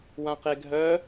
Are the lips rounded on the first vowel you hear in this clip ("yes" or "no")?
no